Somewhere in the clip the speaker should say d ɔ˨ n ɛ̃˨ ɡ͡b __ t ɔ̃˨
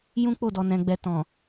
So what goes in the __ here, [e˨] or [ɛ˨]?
ɛ˨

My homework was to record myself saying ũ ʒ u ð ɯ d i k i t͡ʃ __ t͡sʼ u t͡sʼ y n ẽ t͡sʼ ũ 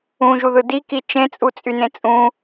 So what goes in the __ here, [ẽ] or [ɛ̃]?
ẽ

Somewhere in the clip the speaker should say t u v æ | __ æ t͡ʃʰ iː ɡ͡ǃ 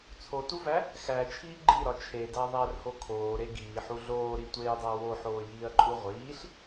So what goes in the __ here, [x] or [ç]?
x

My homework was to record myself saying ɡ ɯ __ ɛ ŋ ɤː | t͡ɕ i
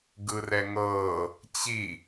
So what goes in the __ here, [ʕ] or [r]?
r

